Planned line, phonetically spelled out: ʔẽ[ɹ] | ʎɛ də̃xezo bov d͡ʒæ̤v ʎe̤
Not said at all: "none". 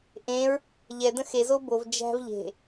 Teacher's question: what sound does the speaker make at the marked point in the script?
ɹ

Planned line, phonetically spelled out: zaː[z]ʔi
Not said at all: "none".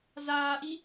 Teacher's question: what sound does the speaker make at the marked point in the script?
none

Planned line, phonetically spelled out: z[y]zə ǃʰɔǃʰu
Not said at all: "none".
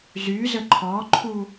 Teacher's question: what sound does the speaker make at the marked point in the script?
y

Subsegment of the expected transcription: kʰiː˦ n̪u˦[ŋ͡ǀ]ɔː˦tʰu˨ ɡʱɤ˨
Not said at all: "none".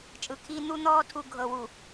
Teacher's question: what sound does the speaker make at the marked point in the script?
n̪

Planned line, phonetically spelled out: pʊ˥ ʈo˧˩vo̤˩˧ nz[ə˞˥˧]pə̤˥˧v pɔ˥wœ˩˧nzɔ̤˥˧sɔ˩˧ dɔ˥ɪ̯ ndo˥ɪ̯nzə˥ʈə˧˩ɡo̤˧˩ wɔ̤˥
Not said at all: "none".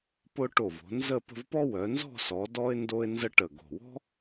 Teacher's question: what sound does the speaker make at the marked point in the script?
ə˥˧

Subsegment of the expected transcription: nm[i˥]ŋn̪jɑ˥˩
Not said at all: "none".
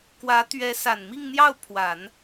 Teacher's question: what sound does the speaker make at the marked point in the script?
i˥˧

